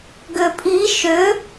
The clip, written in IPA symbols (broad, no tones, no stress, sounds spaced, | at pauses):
ɡ ʏ pʼ i ʃ ʏ